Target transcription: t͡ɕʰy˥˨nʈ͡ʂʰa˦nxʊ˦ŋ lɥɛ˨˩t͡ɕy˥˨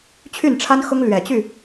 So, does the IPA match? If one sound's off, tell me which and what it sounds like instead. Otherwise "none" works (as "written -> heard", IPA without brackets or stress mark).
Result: none